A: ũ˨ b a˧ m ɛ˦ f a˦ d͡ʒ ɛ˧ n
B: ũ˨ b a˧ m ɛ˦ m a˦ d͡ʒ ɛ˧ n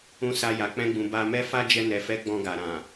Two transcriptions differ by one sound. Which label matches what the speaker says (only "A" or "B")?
A